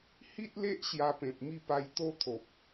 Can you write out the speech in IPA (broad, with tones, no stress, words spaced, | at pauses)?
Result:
hi˦t̚le˦ʔ ɕja˧pẽ˨p̚mi˥˧pa˧j t̪o˦t̪ʰo˨p̚